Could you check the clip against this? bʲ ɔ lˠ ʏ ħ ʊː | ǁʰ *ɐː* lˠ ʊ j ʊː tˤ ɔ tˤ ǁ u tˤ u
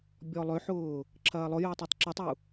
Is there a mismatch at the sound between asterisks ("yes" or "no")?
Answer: no